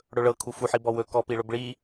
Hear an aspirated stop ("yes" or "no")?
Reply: yes